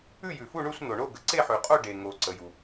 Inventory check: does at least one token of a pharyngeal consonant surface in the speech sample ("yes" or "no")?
yes